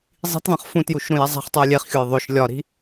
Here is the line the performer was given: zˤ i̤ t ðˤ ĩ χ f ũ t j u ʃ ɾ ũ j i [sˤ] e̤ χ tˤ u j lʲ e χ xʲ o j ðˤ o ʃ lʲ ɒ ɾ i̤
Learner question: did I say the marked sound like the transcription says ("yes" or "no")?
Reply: no